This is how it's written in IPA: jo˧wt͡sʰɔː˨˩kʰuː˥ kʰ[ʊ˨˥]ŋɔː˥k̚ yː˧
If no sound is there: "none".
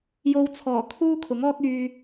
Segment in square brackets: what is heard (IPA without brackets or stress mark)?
ʊ˨˥